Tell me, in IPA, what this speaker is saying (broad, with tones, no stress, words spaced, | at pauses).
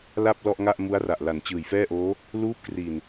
la˥˩p̚ lɔ˥˩ʔ ŋa˥˩ʔmu˦˥a̯ra˨˩ʔ la˩˦nt͡ɕɯː˨˩jfɛː˥˩ʔoː˦˥ | luː˦˥p̚kri˨˩n